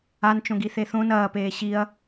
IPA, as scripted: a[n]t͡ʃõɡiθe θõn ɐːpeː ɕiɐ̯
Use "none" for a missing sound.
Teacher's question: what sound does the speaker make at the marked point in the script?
n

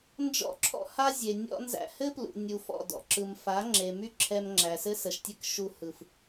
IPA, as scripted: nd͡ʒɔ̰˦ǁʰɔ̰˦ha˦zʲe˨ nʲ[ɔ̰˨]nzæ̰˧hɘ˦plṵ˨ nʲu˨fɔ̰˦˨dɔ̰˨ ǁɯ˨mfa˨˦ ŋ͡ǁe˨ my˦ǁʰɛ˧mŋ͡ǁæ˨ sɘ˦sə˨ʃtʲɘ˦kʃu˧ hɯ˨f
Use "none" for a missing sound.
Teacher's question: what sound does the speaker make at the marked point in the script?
ɔ̰˧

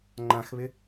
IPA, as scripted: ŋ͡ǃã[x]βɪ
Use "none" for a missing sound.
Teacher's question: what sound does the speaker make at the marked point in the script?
x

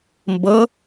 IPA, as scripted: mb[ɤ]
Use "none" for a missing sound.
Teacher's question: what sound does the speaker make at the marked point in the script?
ɤ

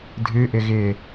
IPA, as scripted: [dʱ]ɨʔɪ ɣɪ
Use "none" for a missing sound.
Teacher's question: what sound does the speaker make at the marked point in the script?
dʱ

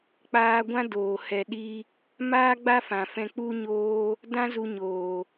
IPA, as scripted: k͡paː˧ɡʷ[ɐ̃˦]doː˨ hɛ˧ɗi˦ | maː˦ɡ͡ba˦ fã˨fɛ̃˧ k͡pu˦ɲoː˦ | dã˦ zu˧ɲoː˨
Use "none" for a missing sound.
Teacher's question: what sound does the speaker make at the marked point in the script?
ã˦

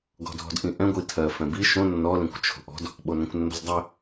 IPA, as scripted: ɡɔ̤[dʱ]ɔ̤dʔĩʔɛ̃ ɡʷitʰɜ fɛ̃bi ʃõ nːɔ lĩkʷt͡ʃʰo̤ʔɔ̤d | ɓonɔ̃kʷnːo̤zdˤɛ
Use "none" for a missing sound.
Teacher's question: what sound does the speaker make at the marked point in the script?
dʱ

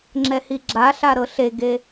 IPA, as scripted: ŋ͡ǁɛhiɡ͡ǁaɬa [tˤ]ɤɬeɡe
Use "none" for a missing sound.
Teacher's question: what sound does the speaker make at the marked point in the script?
ɾ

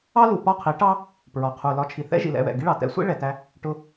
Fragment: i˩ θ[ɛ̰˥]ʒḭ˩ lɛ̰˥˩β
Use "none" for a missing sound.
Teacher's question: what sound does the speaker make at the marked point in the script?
ɛ̰˥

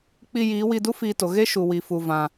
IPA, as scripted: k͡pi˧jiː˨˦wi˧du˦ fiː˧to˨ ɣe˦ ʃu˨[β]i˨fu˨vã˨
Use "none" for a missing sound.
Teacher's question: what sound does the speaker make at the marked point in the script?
w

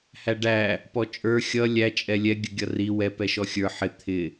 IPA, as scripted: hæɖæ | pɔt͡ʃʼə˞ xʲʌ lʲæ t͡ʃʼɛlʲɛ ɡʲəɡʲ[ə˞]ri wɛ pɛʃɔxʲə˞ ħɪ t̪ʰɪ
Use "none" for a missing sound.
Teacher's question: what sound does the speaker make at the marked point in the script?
ʌ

